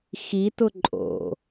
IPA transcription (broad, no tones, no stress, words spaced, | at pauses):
xitʊ ǃʼo̰